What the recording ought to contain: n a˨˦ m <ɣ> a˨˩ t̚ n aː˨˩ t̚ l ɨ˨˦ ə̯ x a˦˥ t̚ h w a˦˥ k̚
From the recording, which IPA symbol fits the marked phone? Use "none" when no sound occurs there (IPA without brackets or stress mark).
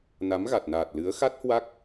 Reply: ɣ